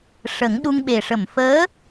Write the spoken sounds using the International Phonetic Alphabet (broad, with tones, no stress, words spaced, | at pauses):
ʂə˨˩˦ŋɗu˧ŋɓe˨˩ ʂə˨˩˨mfəː˧˥